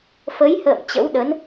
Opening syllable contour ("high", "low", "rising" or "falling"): rising